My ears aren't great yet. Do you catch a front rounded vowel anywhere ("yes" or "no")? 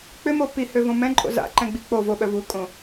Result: yes